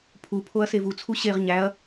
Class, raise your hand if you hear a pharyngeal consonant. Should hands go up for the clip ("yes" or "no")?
no